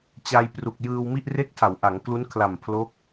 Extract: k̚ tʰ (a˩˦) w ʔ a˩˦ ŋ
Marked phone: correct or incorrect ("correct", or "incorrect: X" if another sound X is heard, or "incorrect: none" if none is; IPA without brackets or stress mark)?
correct